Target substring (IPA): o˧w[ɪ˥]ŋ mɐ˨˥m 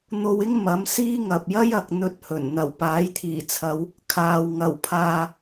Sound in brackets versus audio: correct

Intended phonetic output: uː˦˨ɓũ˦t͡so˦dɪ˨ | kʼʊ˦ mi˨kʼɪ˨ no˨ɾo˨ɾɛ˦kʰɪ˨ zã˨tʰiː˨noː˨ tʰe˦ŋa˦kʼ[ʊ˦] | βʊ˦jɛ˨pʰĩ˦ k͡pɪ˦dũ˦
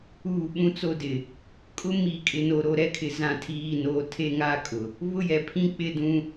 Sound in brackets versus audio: incorrect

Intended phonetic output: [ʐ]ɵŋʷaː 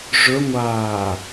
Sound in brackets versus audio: correct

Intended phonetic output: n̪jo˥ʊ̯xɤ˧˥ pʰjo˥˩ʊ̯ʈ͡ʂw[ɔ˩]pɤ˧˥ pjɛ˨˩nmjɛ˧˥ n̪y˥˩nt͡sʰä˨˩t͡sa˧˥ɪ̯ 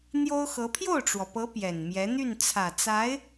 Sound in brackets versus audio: correct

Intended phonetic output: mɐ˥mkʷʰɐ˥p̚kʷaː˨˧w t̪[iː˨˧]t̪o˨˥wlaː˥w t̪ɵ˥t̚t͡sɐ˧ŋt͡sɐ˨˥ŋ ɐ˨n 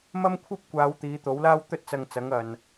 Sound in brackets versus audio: correct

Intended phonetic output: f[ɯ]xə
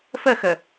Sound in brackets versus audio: incorrect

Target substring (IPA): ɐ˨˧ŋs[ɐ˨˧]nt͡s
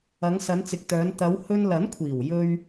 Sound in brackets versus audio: correct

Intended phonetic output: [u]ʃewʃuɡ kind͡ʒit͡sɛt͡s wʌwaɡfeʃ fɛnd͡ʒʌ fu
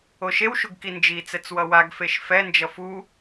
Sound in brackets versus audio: incorrect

